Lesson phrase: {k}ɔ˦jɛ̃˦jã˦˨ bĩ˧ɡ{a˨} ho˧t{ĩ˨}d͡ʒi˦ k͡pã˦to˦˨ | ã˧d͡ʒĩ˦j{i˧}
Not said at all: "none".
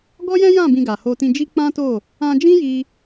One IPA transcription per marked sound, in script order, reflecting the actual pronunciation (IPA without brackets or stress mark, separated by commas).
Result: ɡ, a˨, ĩ˧, i˧